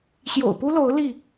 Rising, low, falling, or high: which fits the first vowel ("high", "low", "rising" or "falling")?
low